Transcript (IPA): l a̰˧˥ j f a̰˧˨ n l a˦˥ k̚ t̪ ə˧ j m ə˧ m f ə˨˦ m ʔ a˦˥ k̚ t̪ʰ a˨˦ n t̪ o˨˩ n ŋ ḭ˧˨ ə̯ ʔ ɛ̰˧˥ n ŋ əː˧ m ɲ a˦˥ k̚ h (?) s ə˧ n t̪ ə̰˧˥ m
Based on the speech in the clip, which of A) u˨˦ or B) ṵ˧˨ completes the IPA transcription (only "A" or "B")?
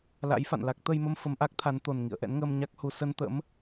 A